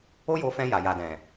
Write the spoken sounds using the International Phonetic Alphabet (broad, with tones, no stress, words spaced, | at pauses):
o˦jo˧fɛ̃˧ ja˨ja˨dɛ̃˨